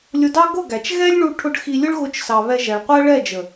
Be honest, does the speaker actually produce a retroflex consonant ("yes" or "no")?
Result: yes